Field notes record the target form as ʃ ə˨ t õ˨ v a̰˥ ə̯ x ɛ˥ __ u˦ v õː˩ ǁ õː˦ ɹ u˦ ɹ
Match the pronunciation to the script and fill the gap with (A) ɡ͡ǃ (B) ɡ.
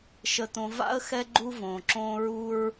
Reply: A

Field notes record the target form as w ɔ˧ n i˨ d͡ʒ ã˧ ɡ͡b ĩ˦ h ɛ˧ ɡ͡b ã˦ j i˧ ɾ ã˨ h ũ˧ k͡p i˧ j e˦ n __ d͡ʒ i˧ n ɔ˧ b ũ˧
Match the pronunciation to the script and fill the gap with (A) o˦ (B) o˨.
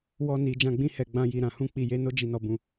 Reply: A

